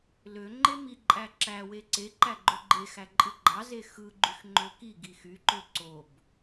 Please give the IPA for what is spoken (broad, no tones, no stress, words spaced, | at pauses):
løŋ͡ǃe miǃʼæ ǁæwe ǀeǃæ ɡ͡ǃøɡ͡ǃexæ ǃʼɯɡ͡ǃɑze xɯɡ͡ǃyx ŋ͡ǃøkiɡi xyǃø ǀob